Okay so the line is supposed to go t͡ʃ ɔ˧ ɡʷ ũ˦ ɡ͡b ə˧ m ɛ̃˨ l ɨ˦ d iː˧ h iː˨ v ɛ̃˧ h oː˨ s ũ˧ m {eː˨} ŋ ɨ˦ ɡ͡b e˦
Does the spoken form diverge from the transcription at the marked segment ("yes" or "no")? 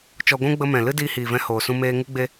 yes